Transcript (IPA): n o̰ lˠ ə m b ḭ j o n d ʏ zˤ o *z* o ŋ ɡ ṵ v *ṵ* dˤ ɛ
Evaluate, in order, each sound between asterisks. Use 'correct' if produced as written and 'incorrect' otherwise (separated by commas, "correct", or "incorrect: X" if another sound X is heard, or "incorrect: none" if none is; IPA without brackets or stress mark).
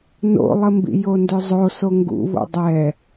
incorrect: s, incorrect: o̰